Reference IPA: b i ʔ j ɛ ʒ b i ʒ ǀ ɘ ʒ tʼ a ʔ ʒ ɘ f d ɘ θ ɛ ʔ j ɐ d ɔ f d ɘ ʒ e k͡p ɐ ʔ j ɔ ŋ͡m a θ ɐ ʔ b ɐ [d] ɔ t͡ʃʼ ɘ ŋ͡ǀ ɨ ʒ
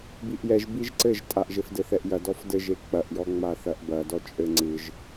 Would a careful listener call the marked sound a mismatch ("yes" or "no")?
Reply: no